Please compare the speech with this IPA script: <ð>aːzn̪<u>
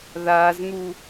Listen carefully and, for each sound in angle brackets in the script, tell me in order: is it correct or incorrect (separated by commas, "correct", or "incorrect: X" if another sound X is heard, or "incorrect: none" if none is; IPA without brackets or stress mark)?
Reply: correct, correct